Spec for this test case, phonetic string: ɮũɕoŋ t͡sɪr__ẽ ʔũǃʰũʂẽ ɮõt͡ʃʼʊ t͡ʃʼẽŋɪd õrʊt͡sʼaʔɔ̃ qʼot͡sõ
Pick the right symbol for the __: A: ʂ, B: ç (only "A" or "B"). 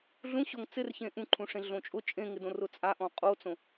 B